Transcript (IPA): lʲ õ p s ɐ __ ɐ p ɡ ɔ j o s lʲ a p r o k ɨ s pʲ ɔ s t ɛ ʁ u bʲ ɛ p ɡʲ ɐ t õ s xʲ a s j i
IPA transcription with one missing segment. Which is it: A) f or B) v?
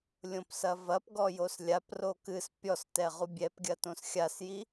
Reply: B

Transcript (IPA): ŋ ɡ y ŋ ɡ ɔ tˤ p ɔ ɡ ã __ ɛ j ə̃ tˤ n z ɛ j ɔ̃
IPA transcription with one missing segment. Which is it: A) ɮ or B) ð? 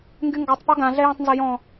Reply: A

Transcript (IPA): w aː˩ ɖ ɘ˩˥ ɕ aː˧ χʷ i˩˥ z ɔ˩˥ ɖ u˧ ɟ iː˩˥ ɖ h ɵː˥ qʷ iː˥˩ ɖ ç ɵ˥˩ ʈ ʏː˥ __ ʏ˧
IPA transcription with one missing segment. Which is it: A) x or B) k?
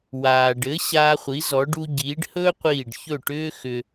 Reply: A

